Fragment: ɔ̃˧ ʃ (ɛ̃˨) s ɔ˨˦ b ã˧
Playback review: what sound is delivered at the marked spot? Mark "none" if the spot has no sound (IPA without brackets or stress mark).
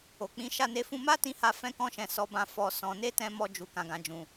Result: ɛ̃˨